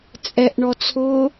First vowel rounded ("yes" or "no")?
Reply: no